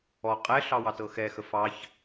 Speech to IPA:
ɔ qʼ ɛ ɬ ɑ w ɑ t ɤ x ɛ x ə f ɑ ç

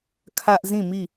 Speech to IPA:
kʰ ä˦ ʔ z ĩ˦˨ m i˦˨

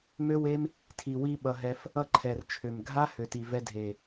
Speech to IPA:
m ø˦ w e˦ m | tʰ i˨ w i˧ ɓ ʌ˨ ɦ ɛ˧ f | ʌ˧ ǃʰ ɛ˨ r t͡ʃʰ ø˨ m ɡʱ a˦ h ø˨ t i˨ v ɛ˧ dʱ e˨

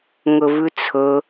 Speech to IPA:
ŋ ɵ v ʉ t͡sʰ ɵ

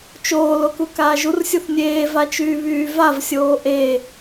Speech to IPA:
t͡ʃ oː l o k u k aː ʒ u r sʲ u θ nʲ eː v a t͡ʃ yː β yː v a v sʲ oː ʔ e

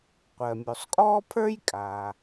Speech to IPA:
qʷ ɜ˩ mʲ u˩ sˤ kʼ ɔː˥ pʰ ə˞˥ j kʼ aː˩

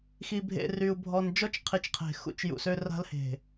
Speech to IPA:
x i˨ bʱ ḛ˨ r y˨ u̯ bʱ ɔ˨ n d͡ʒ ɔ˦ t͡ʃ qʰ i˨ t͡ʃ qʰ e̤˨ x ṵ˦ t͡ʃ j ṵ˨ s ø˦ r a̤˦ l h e̤˨

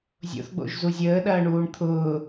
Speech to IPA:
zʲ o̰ θ ɡ͡b o̰ ʒ z u zʲ əː ɗ ɐː ɳ uː ɳ t̪ʰ ʊː

